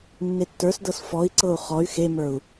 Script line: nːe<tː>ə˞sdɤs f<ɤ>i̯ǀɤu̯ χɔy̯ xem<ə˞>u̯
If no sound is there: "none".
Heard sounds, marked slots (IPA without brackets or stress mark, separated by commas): tː, ɔ, ə˞